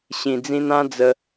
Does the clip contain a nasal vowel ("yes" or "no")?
yes